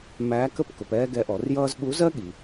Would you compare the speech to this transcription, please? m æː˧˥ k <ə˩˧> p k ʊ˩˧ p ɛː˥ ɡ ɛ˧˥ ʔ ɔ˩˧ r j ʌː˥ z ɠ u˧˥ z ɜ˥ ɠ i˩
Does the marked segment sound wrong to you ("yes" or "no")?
yes